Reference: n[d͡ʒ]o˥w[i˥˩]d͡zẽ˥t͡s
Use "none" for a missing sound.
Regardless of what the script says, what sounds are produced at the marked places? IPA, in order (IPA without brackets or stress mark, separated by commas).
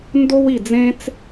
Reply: d, i˥˩